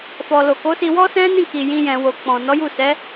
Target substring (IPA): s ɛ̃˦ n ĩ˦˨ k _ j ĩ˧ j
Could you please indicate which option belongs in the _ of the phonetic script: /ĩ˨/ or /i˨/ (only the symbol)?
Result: i˨